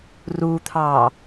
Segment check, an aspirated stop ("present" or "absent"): present